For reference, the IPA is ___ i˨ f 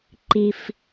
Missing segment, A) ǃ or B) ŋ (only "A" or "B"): A